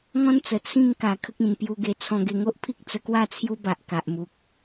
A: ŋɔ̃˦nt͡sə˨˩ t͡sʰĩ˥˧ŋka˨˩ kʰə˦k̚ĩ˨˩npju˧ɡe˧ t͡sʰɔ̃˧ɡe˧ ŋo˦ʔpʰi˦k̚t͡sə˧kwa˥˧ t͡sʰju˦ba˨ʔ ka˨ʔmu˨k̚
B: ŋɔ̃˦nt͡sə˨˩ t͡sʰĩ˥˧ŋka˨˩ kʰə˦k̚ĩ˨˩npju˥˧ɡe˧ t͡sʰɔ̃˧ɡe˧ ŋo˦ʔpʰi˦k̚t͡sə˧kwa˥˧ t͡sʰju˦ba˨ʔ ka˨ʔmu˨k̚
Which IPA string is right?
A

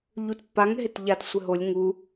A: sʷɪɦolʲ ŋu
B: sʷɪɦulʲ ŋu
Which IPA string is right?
A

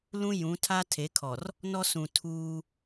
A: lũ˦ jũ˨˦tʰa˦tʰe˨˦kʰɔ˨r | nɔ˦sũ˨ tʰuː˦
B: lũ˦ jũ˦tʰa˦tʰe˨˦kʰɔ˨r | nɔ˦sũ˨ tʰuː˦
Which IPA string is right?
A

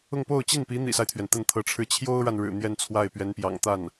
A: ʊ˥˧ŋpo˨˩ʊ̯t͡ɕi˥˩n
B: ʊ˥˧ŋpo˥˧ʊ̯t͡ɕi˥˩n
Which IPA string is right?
B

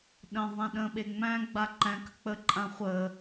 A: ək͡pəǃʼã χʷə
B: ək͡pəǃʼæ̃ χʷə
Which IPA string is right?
A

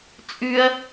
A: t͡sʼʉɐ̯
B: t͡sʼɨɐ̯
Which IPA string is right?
A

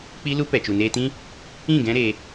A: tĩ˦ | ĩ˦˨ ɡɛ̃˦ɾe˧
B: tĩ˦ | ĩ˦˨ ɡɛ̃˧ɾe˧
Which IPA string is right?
A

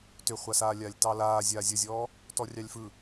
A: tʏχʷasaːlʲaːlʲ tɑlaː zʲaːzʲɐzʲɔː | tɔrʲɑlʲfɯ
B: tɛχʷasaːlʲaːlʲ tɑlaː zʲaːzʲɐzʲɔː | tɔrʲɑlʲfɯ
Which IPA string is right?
A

